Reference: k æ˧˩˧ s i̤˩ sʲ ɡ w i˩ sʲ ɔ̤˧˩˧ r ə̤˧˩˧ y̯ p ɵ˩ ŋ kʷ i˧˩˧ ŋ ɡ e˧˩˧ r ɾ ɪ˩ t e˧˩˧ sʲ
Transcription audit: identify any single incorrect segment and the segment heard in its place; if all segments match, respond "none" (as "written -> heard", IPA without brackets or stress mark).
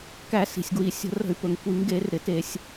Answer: ɔ̤˧˩˧ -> ə̤˧˩˧